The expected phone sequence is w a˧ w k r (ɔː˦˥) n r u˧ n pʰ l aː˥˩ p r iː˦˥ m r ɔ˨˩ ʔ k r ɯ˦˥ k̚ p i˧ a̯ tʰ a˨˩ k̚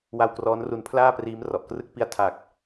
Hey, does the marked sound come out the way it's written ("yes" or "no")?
yes